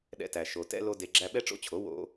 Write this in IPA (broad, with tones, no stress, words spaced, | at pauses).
ɗɛ̰˦tæ˧ʃo˧ tɛ̰˦lo˦de˧ɡ͡ǁæ˦ ɓɛ˦ʈ͡ʂo̰˦t͡ɕʰo˨˦ wo̰˧